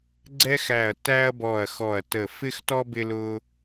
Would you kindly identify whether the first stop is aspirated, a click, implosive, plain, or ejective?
click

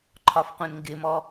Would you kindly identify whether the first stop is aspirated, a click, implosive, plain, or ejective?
click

